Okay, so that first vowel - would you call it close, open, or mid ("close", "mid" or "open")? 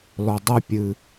mid